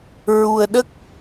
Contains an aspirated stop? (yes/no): no